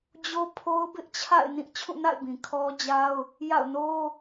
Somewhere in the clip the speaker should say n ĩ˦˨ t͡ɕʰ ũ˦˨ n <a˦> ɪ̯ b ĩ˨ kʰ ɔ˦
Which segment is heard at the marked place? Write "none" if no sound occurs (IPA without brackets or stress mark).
a̰˦˨